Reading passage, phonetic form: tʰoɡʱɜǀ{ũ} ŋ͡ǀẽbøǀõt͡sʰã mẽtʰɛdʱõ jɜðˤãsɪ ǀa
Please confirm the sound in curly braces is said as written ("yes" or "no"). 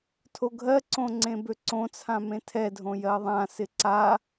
no